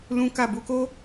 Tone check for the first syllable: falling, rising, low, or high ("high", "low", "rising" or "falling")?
high